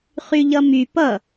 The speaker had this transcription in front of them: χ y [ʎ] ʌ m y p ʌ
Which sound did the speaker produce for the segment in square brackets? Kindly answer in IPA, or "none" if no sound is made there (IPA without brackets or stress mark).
ʎ